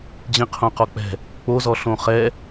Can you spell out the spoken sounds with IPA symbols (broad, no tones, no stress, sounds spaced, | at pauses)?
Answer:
d͡ʑ ĩ qʰ õ q ɔ k͡p ɛ̤ | k͡p o z ɔ ɬ õ χ ɛ